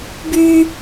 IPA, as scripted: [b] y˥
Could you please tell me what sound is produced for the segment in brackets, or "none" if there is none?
b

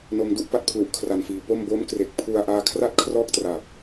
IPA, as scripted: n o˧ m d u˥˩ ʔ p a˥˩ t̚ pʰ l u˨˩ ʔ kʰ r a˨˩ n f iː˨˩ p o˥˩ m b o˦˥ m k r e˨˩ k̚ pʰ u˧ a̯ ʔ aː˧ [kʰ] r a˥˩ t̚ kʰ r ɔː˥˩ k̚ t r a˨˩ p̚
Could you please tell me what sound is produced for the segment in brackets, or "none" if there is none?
kʰ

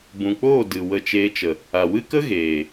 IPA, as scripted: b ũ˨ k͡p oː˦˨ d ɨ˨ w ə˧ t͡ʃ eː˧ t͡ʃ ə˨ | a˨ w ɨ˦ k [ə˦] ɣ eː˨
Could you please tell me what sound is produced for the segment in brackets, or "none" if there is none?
ə˦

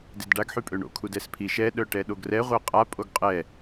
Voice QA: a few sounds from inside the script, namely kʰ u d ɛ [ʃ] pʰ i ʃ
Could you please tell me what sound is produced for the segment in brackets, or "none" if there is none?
s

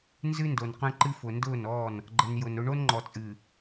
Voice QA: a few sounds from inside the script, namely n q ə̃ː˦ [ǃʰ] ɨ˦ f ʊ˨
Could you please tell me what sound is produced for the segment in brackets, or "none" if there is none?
ǃ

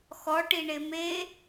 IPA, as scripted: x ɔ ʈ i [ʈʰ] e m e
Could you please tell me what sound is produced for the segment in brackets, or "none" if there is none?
ɳ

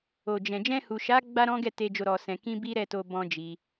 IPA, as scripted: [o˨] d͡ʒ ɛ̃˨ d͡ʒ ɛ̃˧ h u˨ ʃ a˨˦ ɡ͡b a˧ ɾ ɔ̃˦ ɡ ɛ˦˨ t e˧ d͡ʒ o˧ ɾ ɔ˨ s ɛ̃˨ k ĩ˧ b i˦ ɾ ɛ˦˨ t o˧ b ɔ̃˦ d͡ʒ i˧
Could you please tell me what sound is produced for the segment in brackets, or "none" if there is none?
o˨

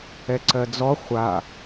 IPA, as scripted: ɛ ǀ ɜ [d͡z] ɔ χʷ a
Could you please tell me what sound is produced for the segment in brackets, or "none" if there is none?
d͡z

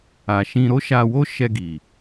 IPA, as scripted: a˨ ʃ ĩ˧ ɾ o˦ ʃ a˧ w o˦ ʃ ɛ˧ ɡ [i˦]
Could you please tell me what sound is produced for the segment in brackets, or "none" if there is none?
i˨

